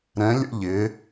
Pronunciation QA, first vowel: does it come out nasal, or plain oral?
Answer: nasal